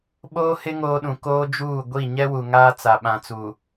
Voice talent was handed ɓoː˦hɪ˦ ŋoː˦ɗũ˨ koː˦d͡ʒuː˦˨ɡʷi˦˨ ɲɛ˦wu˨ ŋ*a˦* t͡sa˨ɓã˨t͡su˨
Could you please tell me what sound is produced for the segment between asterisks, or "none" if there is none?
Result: aː˦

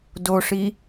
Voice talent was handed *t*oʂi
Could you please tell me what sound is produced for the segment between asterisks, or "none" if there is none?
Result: d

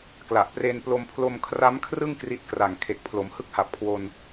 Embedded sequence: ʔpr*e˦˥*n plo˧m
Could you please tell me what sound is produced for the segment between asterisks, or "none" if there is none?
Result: e˧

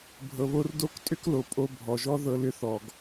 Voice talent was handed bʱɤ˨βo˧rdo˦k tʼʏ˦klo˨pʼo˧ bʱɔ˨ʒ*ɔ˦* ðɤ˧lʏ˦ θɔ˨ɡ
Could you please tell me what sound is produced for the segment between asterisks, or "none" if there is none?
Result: ɔ˦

